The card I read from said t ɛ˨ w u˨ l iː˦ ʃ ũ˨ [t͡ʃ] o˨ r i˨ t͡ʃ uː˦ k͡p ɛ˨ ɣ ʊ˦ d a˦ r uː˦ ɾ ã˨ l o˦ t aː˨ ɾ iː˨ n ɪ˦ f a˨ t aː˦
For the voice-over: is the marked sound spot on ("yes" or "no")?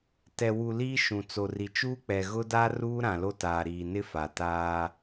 no